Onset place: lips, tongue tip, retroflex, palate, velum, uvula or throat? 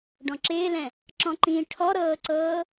retroflex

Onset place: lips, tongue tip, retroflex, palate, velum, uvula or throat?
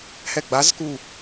throat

